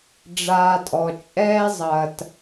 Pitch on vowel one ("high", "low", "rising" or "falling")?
low